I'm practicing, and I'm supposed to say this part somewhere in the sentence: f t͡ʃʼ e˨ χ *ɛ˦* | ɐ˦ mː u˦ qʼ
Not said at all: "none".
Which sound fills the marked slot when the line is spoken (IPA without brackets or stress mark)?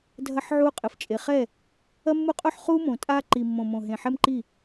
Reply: ɛ˦˨